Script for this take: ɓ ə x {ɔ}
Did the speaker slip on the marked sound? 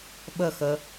yes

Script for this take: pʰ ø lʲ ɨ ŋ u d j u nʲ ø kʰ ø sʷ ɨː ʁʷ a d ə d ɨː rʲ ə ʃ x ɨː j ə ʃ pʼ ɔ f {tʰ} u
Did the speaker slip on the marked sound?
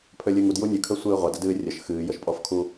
yes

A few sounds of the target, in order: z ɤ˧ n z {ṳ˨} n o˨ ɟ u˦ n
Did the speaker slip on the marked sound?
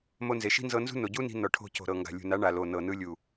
yes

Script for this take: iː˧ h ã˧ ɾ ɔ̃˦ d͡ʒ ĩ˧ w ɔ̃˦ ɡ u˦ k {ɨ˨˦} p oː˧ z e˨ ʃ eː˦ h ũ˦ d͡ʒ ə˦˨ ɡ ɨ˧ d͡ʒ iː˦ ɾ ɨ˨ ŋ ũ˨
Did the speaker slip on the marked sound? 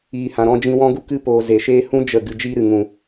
yes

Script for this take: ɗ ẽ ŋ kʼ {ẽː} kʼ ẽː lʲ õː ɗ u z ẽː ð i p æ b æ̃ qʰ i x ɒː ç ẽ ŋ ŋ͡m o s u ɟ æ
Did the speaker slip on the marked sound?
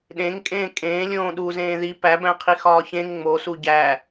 no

